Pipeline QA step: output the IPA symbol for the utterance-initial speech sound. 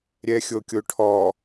ɾʲ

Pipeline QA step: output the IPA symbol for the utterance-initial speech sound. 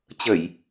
t͡ɕ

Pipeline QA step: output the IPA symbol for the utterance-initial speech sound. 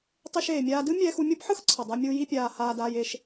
tˤ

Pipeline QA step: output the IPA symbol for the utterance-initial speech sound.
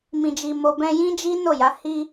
m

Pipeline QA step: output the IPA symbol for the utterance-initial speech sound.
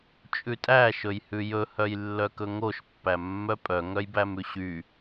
t͡ʃʼ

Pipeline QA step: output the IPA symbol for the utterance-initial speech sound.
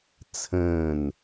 t͡sʰ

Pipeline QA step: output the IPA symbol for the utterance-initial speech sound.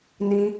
n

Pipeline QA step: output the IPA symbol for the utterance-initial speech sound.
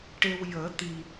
ʈ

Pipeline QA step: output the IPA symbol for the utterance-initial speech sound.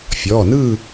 fʲ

